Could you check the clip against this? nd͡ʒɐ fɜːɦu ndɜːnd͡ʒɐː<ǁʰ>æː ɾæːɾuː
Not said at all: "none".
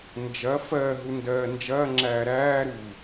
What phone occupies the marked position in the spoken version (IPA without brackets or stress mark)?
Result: ŋ͡ǁ